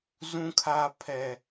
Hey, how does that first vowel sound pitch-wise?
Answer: high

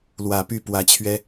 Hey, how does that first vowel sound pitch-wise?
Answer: low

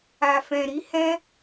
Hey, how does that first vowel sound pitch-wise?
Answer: low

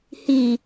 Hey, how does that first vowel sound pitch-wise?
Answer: low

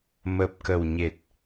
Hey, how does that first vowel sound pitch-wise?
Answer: low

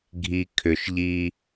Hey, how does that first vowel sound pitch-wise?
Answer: low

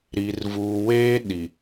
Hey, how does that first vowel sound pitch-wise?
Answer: low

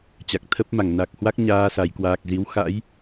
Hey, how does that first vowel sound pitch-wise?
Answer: low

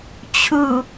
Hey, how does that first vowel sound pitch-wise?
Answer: low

